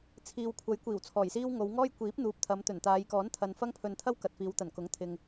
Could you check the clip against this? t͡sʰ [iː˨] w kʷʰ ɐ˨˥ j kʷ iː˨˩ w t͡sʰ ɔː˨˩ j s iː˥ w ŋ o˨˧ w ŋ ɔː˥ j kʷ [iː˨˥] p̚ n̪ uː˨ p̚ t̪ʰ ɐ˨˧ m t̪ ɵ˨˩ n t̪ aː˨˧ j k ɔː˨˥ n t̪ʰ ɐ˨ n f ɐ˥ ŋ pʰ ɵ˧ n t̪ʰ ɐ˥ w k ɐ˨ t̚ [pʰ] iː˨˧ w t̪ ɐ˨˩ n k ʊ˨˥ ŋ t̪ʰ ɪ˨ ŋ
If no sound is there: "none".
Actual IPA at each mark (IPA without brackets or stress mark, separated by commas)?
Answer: iː˨, iː˨˥, f